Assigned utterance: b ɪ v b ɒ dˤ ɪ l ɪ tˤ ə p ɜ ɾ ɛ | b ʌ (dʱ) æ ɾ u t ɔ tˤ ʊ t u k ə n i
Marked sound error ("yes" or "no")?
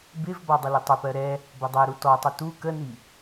yes